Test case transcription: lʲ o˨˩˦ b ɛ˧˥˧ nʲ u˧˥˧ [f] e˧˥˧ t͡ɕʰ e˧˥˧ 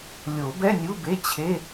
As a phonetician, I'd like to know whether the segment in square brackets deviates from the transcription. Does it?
yes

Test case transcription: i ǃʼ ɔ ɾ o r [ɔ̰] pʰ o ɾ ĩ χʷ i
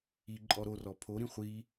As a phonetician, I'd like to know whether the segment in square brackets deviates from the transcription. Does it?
yes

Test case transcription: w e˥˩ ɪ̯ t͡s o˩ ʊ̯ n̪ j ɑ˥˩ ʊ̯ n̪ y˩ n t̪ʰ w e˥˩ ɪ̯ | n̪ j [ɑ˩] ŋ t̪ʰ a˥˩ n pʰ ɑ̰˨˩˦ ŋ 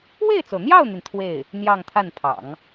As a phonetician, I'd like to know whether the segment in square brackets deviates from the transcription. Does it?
yes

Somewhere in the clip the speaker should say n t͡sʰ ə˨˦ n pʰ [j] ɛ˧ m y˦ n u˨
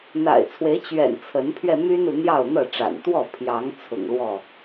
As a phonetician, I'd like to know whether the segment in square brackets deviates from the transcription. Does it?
yes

